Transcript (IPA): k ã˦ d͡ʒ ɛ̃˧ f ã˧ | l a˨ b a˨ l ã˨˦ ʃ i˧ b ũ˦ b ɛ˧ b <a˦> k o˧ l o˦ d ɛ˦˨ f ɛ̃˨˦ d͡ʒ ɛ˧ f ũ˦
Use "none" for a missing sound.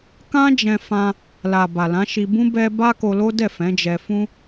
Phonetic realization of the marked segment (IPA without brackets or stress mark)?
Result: a˦